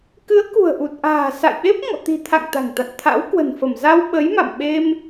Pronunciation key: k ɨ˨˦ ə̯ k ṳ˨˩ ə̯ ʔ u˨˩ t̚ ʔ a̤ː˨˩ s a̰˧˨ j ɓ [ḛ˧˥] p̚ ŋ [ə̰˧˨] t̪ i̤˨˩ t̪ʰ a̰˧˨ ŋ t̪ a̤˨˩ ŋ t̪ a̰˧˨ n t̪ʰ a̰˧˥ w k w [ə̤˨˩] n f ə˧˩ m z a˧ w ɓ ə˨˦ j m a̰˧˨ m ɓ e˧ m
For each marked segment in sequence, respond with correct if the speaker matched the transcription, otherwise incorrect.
incorrect, incorrect, correct

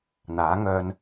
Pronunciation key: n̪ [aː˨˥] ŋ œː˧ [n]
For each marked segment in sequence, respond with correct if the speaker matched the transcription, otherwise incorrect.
correct, correct

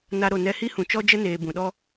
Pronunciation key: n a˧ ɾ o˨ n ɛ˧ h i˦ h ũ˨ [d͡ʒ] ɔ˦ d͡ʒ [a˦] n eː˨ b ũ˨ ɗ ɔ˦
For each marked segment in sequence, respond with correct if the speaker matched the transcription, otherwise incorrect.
incorrect, incorrect

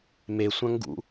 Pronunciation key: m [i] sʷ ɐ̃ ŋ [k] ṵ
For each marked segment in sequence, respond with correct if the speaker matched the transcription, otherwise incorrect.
incorrect, incorrect

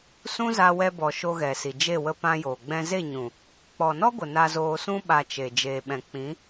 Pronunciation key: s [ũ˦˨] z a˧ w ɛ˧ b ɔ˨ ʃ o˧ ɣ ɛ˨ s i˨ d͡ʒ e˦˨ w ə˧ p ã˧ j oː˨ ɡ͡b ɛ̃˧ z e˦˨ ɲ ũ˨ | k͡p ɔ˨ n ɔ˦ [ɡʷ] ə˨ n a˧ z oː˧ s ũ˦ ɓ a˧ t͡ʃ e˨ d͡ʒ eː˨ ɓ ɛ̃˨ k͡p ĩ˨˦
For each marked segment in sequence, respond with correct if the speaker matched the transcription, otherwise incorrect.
incorrect, correct

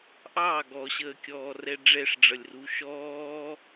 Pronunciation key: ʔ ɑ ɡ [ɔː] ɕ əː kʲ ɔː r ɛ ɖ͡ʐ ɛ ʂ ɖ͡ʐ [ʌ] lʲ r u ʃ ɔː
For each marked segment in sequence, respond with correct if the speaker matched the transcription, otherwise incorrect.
incorrect, correct

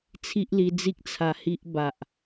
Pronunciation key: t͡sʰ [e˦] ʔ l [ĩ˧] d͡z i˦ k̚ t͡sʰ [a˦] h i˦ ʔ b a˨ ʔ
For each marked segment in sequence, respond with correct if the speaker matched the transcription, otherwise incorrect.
incorrect, incorrect, incorrect

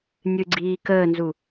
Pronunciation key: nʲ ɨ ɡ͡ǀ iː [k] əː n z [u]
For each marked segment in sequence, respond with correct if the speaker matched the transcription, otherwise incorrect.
correct, correct

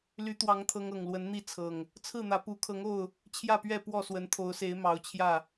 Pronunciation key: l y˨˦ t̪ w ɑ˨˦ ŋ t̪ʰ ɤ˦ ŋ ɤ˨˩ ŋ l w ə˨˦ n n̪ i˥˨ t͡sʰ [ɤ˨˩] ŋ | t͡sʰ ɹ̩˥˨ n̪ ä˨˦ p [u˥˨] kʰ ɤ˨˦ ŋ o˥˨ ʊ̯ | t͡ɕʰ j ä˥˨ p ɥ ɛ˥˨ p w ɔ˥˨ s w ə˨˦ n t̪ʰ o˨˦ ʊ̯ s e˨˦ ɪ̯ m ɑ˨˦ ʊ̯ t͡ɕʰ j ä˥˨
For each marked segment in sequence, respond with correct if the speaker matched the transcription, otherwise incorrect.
correct, incorrect

